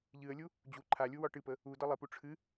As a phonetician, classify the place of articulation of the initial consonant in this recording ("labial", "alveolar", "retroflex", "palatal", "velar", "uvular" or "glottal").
palatal